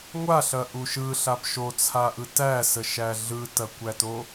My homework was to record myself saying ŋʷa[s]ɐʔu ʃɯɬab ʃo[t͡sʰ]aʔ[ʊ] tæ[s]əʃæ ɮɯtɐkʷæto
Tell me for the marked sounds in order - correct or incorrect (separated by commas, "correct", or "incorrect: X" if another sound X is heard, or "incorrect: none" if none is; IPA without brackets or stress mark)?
incorrect: ɬ, correct, incorrect: ɯ, correct